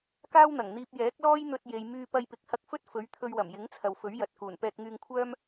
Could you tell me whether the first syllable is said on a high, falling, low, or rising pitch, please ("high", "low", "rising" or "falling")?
high